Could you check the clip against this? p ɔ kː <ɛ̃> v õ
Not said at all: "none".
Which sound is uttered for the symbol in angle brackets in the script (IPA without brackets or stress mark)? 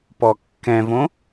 ɛ̃